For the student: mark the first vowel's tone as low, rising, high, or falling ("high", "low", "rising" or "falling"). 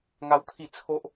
high